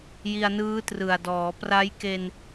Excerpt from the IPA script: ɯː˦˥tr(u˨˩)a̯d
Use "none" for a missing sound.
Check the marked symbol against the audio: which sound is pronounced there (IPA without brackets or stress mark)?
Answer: ɯ˨˩